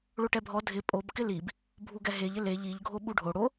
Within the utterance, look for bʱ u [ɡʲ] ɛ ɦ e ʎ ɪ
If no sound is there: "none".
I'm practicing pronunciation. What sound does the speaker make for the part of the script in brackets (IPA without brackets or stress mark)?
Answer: ɡ